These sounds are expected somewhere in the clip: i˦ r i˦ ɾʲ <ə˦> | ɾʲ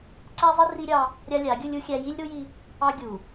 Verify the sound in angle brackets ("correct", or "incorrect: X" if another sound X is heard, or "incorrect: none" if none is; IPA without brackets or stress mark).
incorrect: ɑ˦